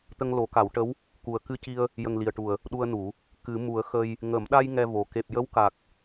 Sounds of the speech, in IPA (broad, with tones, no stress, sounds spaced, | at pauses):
t̪ ə˧ ŋ l o˨˩˦ k a˨˩˦ w ʈ ə˧˥ w | k u˨˩ ə̯ k ɨ˧ c i˧ ə̯ | j ə˨˩ ŋ l i˨˩ ə̯ ʈ u˨˩ ə̯ | ɗ u˧ ə̯ n u˨˩˦ | k ɨ˨˩˦ m u˨˩˦ ə̯ x ə˧ j | ŋ ə˨˩˦ m ɗ a˧ j ŋ ɛ˧ v o˨˩ k e˨˩ p̚ j ə˧˥ w k a˨˩ k̚